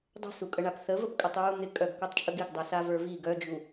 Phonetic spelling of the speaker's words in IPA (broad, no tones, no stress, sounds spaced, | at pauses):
dˤ ə̤ s u kʼ ə ɳ a p θ ə v ə p kʼ ə tˤ ɹ u n̪ ɪ kʼ œ ɡ kʷ ə˞ tˤ t͡ʃʼ ə ɡ ɪ ɡ dˤ ɛ s a v ə˞ v i ɡ œ d͡ʒ u